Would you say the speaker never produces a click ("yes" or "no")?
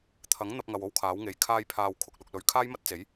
yes